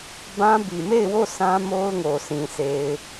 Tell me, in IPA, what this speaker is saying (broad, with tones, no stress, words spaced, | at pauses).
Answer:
bã˦bi˨ me˦˨ɪ̯wo˦˨ sʰã˦mo˦ʊ̯ŋo˨ sʰĩ˨ se˨ɪ̯